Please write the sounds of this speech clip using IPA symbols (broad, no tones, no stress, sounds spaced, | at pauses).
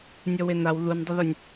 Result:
nʲ ɔ w e n a w ð u n dˤ ə ð ɵ nʲ